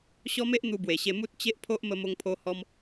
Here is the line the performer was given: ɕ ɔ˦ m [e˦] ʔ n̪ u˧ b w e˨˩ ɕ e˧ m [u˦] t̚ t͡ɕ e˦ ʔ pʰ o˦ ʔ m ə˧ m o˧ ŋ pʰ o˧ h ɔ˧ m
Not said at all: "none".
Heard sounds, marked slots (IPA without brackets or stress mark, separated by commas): e˦, u˦